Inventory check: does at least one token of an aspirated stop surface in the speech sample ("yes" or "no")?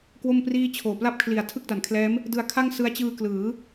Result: yes